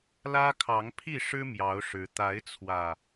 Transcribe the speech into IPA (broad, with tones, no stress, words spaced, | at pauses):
lä˦kʰɑ˨˦ŋpʰi˥˨ ʂɻ̩˦ mjɑ˨˦ʊ̯ʂɻ̩˨˦ t̪a˨˦ɪ̯t͡sʰwä˨˩